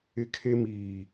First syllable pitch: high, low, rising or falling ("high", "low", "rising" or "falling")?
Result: high